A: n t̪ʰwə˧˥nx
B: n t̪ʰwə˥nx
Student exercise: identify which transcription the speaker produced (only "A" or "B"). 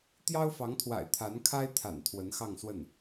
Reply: A